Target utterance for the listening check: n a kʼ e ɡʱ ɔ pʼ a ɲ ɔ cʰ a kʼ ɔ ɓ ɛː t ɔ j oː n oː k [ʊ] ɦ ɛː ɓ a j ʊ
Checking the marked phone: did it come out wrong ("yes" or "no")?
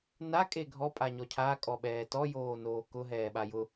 no